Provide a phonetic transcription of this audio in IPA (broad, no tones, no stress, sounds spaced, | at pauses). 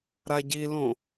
ɾ a ɟ i l õ